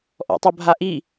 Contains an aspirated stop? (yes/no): no